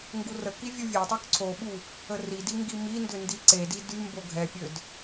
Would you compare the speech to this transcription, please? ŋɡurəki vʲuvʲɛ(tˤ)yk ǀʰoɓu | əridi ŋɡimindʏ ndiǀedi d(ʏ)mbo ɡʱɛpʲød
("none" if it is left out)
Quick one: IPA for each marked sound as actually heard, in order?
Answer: tˤ, y

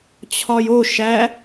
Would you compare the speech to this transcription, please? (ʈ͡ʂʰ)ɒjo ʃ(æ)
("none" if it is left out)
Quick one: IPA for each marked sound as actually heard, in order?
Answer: t͡ɕʰ, æ

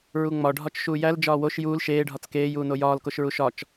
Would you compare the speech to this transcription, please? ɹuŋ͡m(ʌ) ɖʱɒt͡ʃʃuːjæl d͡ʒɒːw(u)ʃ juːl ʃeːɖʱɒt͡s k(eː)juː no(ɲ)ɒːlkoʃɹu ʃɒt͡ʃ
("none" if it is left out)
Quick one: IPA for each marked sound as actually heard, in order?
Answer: ɒ, o, eː, j

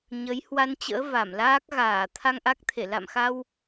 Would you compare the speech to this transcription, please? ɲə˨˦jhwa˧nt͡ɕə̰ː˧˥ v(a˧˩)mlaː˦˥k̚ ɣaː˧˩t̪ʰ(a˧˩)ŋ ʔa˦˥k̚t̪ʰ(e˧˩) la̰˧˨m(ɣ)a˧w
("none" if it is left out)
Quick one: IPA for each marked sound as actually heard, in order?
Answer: a˧˩, a˧, e˧˩, x

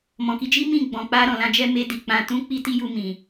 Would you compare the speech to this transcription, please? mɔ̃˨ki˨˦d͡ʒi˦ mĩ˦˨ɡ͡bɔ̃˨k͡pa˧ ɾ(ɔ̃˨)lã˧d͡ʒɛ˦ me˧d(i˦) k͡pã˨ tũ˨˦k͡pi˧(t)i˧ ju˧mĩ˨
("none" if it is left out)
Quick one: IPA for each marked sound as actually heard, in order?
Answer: ɔ̃˨, i˨, t

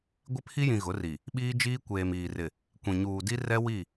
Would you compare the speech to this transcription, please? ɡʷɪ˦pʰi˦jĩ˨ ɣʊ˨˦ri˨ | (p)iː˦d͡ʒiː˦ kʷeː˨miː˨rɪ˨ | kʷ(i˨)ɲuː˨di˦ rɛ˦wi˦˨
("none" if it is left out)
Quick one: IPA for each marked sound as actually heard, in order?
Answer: ɓ, ĩ˨

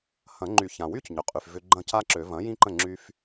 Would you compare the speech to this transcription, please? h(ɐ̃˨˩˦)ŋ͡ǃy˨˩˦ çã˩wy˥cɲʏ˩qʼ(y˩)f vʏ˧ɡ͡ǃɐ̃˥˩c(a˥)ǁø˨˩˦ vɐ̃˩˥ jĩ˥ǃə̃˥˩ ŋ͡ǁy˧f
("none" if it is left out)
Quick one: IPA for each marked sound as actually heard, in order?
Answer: ɐ̃˨˩˦, y˩, a˥

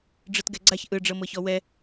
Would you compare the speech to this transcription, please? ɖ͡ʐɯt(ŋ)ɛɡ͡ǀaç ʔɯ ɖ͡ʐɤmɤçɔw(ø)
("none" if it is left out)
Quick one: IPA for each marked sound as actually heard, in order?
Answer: ɡ, ɛ

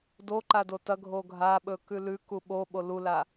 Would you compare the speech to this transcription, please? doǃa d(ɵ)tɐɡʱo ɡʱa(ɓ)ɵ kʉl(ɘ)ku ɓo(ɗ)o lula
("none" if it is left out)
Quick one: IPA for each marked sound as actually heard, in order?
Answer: o, ɓ, ʉ, ɓ

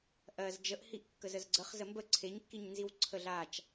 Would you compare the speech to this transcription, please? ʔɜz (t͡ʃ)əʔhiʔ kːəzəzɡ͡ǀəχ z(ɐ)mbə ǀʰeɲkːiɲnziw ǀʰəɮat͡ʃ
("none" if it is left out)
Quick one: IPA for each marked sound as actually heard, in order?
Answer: d͡ʒ, ə

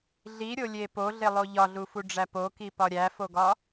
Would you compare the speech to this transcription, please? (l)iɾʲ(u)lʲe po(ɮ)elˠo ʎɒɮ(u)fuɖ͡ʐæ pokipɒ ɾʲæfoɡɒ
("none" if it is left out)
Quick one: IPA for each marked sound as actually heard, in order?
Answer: ɮ, o, ɮ, u

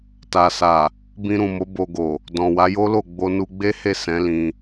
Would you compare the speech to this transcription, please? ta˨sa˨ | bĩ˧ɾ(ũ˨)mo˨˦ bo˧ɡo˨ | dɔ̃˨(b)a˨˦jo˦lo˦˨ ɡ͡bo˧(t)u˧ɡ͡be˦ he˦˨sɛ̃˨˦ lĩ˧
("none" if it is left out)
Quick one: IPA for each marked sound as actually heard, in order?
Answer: ũ˨, w, n

